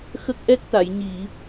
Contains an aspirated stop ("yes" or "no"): no